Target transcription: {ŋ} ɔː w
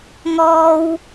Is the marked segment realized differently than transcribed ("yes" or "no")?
no